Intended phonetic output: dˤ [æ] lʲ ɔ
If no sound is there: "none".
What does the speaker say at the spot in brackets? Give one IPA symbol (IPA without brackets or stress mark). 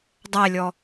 æ